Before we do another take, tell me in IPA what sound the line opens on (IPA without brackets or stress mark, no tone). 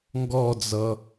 ŋ